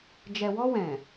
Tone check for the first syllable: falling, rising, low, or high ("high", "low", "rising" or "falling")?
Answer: low